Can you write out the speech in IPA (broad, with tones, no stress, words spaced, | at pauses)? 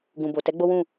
ɡũ˨bo˨ tɛ˨˦ ɡ͡bo˦wũ˦˨